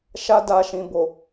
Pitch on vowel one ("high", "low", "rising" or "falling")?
high